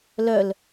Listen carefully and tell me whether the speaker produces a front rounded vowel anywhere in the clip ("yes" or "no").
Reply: yes